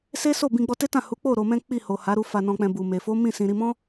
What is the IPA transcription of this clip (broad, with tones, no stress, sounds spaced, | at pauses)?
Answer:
s e˦ s o˦˨ b ĩ˧ ɡ͡b ɔ˧ t e˦ t ã˦˨ h u˨˦ k͡p o˦˨ ɾ o˧ m ɛ̃˦ k͡p i˦˨ h o˨ h a˨˦ ɾ u˧ f a˨ n ɔ̃˨ k͡p ɛ̃˨ b u˨ m e˨ f o˨˦ m ĩ˦˨ s ĩ˨ ɾ i˧ m ɔ̃˦